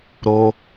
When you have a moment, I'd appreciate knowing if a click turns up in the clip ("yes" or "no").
no